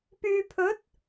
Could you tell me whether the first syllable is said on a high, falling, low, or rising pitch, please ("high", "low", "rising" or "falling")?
low